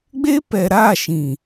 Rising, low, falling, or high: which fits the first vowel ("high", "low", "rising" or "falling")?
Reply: high